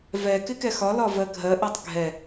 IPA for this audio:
v ɛ k ɪ k ɛ x ɒ l ɒ v ɜ ɡʱ ɜ ʔ ɜ tˤ ɡʱ ɛ

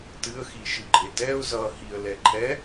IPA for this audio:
t ɨ ə̯ x i ʃ ɨ ɡ͡ǃ e t ɛ ʊ̯ z ʌ h i ə̯ l ɛ ǃʰ ɛ

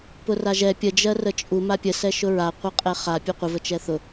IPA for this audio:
p ʊ r a ʒ ɛ pʲ ə d͡ʒ ɜ r ə t͡ʃʼ u m a pʲ ə s ɛ ʃ ʊ ɹ a qʷ ɤ qʼ ɛ χ a pʲ u qʷ ə v ə t͡ʃ ɛ θ ʊ

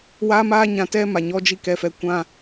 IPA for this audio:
w aː˦ m aː˦ ɲ ã˧ t ɛ˦ m a˨ ɲ ɔ˧ d͡ʒ i˧ k ɛ˧ f ɛ˧ kʷ ã˧

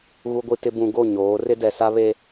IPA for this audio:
ɣ u˨ ɡʷ i˨ t ɪ˨ b ũ˨ ɡ o˦˨ ɲ oː˨˦ r ɪ˦ d ɛ˨ s a˦ β e˦

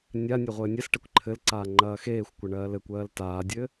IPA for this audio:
nʲ a nʲ e ʁʷ ɘː nʲ ɛ s ʈ ɛ kʷ ǃʰ ɘ l ǀ aː ŋ͡ǃ ɐː x eː xʷ kʷ ɐ ɳ ɜː l ɘ kʷ ɜː l t aː dʲ ɘ

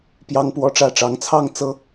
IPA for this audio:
p j ɑ˦ ŋ p w ɔ˦ ʈ͡ʂ ä˥˨ ʈ͡ʂ ɑ˨˦ ŋ t͡sʰ ɑ˥˨ ŋ t͡s ɤ˨˦

